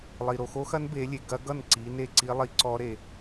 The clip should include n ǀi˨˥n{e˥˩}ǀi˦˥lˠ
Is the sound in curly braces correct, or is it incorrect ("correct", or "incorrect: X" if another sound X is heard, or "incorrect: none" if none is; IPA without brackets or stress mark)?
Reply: correct